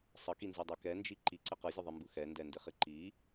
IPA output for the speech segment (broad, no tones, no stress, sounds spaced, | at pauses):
sˤ ə k i n z i dˤ ɛ k ɛ n d͡ʒ i ǃ i ǀ ɪ q ɯ zʲ ə ðˤ i m b ɯ x ɛ n d ɛ n d ɪ χ ɪ ǃ i